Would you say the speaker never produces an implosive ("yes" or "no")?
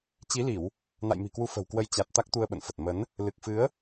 no